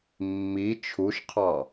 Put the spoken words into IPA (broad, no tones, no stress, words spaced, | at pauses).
mːi t͡ʃʰuʃqʰɑ